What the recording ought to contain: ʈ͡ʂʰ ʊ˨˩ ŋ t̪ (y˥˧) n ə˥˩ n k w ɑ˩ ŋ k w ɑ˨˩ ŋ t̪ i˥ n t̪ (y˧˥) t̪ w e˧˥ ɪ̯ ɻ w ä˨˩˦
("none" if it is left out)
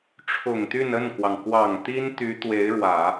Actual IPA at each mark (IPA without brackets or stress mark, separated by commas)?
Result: y˥˧, y˧˥